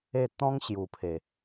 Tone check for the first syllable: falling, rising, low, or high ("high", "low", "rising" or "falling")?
falling